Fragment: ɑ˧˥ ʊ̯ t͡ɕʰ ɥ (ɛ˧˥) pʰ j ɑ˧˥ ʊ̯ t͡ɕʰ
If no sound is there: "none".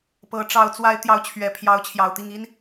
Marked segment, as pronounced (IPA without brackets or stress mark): ɛ˨˩